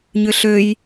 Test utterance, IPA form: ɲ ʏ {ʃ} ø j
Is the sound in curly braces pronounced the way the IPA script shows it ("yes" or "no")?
no